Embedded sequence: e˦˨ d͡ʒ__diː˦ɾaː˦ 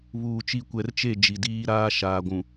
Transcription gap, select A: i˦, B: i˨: B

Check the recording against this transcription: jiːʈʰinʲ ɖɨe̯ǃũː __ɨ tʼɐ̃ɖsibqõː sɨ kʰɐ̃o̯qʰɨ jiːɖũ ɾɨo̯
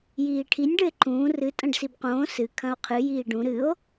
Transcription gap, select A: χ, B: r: B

